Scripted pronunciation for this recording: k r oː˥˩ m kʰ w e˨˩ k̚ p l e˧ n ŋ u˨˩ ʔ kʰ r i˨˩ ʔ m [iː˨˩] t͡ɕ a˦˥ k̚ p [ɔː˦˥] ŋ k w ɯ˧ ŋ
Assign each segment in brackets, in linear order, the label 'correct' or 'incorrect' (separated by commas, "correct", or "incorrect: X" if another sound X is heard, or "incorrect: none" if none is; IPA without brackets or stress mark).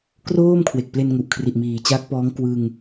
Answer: correct, correct